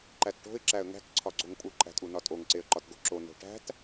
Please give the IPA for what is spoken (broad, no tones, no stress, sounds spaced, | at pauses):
ǃ æ t ʈ o̤ ɪ̯ ǁ æ ə̯ ŋ æ̤ k ǀʰ ɒ ɡ͡ǀ o ŋ pʼ u ǃʼ æ̤ tʼ u n ɒ tʼ o ŋ ǀ e ə̯ ǃ ɒ t ɡ o ǁ o n o̤ ʈ æ̤ t